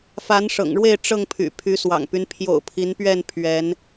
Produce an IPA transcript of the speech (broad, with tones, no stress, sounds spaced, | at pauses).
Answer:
f a˨˦ n ʂ ɤ̰˨˩ ŋ ɻ w e˥˨ ɪ̯ ʈ͡ʂ ɤ˥˨ ŋ pʰ y̰˨˩ pʰ y˨˦ s w ɑ̰˨˩ ŋ p y˦ n pʰ j o̰˨˩ ʊ̯ pʰ i˨˦ n p ɥ ɛ˥˨ n pʰ ɥ ɛ˨˦ n